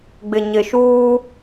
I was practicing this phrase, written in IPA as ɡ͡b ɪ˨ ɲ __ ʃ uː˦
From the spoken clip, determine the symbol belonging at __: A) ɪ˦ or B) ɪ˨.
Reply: B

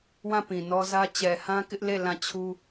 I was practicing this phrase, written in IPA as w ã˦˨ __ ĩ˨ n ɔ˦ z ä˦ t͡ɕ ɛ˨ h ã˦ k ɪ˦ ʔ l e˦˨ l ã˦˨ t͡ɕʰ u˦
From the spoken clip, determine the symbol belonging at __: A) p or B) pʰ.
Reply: A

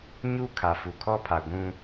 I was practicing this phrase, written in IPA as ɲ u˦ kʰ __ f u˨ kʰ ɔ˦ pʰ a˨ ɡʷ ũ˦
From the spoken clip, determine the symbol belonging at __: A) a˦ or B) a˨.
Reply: B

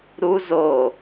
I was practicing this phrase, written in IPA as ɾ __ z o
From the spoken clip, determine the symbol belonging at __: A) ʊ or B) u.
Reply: B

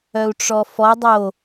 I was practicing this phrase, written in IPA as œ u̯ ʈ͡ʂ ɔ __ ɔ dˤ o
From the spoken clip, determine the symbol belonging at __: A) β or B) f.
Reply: B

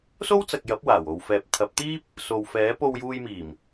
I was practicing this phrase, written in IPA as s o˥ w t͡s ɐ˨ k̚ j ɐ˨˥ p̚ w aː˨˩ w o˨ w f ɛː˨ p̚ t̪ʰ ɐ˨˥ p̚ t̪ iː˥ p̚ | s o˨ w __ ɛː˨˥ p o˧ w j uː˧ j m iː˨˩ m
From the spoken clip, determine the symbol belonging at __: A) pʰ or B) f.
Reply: B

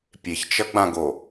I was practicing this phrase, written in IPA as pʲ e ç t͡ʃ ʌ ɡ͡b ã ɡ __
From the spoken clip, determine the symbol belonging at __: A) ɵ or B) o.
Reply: B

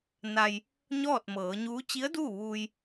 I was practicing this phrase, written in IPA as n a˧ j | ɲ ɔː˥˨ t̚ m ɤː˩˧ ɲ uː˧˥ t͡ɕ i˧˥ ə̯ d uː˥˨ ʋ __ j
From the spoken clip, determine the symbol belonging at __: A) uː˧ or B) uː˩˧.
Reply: A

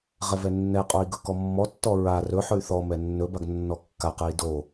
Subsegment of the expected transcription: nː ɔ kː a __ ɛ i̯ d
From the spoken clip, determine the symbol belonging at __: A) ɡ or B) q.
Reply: B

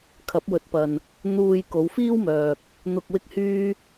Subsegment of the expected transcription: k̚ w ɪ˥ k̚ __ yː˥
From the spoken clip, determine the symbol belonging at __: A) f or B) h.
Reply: B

